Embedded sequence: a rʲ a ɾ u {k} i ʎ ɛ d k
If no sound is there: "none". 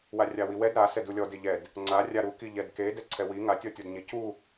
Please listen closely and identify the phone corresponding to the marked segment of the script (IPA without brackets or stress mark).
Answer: k